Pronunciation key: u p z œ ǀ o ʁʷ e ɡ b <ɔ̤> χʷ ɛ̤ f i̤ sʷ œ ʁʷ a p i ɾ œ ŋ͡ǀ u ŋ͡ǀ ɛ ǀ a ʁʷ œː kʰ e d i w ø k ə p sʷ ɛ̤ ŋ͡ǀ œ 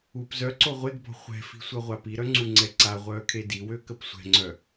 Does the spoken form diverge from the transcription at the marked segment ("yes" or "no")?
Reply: no